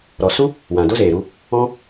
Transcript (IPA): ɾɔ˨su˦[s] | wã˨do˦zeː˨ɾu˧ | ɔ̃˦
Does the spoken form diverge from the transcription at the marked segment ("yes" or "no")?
yes